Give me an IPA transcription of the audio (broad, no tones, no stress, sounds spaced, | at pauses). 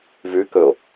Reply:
v ʉ k ɵ o̯